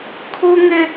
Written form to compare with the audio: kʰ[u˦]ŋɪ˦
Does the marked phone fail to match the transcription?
no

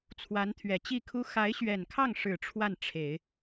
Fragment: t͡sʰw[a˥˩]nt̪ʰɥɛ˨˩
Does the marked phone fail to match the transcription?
yes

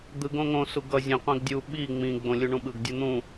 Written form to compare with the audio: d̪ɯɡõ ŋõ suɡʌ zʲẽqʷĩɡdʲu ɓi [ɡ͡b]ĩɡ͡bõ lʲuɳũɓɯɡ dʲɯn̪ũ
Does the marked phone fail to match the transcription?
yes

